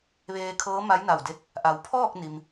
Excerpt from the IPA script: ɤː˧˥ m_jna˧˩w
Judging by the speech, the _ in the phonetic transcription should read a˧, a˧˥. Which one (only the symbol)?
a˧˥